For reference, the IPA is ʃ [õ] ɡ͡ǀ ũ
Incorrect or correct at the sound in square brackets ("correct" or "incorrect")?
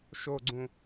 incorrect